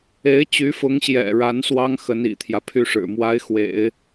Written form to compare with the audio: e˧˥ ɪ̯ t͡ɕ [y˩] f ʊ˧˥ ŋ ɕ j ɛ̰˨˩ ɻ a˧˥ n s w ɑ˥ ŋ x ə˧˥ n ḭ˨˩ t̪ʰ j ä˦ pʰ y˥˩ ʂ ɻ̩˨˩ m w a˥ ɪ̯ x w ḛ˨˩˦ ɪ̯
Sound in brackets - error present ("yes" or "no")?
yes